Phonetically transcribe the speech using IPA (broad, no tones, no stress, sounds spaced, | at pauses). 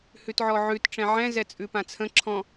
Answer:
h ʉ t ʕ ɔ ʕ ʉ t ʈ͡ʂ ɛ̃ ʕ ɛ̃ z ɛ t͡sʼ ʉ p ã t͡sʰ ə̃ ǁʰ ɔ̃